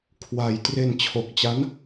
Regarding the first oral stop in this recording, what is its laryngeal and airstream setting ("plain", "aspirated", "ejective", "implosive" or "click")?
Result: aspirated